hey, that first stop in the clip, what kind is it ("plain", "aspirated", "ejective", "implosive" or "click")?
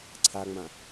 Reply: click